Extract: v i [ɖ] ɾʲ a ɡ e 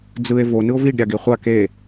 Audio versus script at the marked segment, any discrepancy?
no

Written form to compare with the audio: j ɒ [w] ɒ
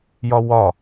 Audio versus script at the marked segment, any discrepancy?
no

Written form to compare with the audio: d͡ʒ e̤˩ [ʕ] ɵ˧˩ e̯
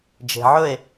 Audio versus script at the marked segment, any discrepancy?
no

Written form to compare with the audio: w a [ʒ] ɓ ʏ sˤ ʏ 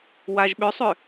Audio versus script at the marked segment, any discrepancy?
no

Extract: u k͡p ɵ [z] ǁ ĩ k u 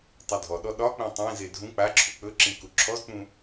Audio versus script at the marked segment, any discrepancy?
yes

